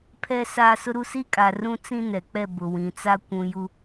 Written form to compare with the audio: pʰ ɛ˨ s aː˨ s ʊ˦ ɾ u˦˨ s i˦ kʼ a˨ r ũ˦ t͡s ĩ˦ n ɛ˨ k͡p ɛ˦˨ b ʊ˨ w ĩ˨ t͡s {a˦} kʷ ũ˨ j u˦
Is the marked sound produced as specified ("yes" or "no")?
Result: yes